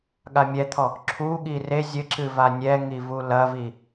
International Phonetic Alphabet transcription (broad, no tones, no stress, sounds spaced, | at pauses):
ɠ a mʲ ɛ t̪ʰ ɔ | ǁʰ u ɠ i r e zʲ ɘ ǁ ɨ v a nʲ ɛ ŋ i v u l ɐ v i